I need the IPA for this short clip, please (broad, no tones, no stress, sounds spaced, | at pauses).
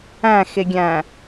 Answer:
æ̃ x e ɡʲ æ̃